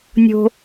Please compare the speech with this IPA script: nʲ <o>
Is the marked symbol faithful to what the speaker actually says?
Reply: no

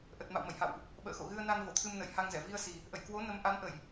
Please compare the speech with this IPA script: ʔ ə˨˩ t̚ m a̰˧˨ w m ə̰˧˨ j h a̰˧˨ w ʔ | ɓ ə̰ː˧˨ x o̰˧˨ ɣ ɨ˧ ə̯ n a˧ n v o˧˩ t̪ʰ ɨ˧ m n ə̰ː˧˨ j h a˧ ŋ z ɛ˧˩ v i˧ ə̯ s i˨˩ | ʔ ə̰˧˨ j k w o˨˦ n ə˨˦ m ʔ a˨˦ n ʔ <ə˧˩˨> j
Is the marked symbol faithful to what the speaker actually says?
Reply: yes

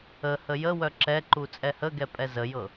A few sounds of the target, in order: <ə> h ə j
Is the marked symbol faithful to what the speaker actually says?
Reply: yes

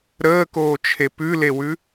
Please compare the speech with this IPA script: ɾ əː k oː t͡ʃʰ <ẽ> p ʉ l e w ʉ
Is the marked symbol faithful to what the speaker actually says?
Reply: no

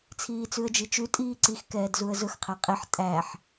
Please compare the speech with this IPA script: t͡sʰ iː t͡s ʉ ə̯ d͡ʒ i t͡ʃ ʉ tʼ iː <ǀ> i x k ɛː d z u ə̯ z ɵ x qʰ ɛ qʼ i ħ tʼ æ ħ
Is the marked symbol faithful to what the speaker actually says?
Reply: yes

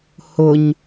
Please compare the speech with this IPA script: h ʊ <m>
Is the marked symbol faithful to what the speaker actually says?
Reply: no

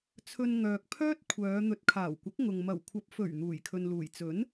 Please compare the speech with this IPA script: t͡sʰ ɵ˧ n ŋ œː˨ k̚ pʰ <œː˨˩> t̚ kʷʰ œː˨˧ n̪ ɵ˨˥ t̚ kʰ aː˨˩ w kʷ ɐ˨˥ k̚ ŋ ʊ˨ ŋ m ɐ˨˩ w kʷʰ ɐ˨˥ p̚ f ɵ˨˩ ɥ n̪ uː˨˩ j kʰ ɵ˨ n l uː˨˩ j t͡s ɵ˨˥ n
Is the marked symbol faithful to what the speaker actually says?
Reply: no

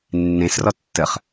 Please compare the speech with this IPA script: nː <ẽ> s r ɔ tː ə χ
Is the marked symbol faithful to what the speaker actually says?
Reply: yes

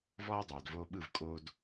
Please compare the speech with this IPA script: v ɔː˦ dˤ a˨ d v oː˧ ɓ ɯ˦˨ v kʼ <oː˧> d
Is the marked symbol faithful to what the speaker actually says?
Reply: yes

